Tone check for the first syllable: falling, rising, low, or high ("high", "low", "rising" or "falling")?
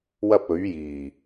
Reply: high